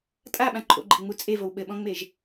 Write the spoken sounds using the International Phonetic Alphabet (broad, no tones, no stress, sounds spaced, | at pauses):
tʼ a ɓ ã ǃʰ o̰ ɡ͡ǃ e̤ ŋ͡m u t͡sʼ e v o w ɓ ɘ ɓ ɔ̃ ŋ͡m e ʒ